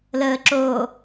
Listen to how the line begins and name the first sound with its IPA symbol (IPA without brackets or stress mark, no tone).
l